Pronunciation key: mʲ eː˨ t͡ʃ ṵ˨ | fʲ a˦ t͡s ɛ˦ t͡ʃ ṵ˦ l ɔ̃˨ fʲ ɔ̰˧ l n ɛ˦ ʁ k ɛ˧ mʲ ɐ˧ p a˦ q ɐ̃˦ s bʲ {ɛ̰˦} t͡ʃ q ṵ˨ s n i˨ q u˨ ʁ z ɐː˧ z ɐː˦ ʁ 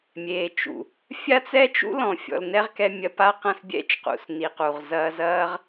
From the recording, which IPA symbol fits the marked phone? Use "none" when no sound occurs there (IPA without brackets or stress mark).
ɛ̰˦